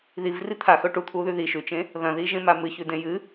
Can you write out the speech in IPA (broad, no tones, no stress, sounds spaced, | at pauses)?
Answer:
ð i v r i t̪ʰ a x ɵ ʈ u t̪ʰ uː ð ʉ ð i ʃ ʉ t͡ʃ ẽ | ð ɐ̃ ð iː ʒ ẽ m a m ɨ ç ʉ d ẽ j ɨ